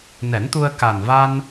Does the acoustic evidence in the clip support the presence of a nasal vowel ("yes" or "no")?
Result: no